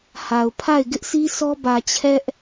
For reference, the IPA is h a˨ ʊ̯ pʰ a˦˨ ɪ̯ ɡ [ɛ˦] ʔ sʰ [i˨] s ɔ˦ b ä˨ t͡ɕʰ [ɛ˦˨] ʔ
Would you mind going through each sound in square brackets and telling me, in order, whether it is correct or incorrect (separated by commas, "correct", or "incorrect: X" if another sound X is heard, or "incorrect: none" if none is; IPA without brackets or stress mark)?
incorrect: ɪ˦, incorrect: i˦, incorrect: ɛ˦